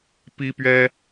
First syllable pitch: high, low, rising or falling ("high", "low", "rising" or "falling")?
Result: high